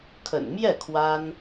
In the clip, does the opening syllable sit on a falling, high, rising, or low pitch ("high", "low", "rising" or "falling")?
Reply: low